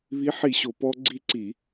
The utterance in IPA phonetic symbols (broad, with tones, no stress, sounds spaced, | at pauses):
β i˨˥ ħ i˧˩˧ ɕ o˩˧ p ɔ˦˥ ɡ͡ǀ i˦˨ ǀ i˧˩˧